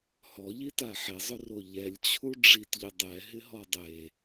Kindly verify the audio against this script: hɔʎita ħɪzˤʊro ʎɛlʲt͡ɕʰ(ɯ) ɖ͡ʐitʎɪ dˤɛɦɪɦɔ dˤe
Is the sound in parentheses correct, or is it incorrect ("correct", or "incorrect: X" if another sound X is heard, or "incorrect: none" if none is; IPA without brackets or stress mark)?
incorrect: u